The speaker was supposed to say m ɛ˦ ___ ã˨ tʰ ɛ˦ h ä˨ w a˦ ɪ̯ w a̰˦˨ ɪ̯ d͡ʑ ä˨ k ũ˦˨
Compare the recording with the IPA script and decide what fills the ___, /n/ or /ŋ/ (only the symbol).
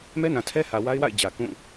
n